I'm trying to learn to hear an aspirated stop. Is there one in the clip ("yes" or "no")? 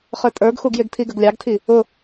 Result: yes